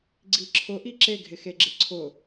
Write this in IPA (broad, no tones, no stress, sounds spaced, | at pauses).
ɡ͡ǀ i ǁʰ ʊ ʔ i ǁ e ɡʱ ɪ x e ɡ͡ǁ ɪ ǀʰ ʊ